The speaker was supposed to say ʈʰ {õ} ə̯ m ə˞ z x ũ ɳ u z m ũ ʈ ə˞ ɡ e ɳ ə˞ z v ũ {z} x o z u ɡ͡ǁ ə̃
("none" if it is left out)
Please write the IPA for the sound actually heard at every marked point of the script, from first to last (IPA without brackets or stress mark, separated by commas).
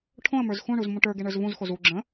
õ, z